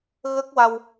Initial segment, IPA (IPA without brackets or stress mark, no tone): ɣ